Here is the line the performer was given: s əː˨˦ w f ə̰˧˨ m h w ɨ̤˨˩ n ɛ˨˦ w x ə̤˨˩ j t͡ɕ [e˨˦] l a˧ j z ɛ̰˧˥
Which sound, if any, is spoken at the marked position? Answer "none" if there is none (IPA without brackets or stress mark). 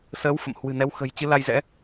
ɨ˨˦